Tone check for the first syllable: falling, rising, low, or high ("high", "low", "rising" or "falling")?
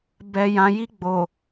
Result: low